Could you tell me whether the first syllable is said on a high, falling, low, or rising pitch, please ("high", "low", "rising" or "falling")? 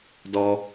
high